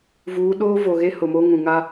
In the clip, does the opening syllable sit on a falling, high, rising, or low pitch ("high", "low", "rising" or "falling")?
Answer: rising